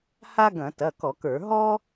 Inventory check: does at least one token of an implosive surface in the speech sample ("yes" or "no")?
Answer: no